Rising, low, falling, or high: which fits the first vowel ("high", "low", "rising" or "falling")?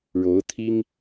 rising